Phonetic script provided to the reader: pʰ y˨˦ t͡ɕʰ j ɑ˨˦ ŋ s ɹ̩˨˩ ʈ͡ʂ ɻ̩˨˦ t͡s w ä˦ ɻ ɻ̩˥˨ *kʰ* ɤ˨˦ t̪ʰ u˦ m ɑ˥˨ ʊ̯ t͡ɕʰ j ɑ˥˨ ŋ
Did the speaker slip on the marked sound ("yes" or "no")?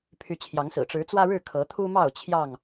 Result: no